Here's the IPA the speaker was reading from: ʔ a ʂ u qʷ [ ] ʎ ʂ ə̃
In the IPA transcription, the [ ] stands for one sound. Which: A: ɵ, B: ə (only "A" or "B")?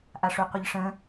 B